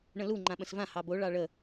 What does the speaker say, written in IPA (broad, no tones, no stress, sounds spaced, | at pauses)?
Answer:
ɳ ə̃ l u ŋ͡ǃ ã ɓ ə̃ s v ã h ɑ b o ɭ ɑ ɭ ə